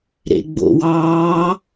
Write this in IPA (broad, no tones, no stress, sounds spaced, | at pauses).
ɾ ḛ ɡ͡b o̰ w ɑː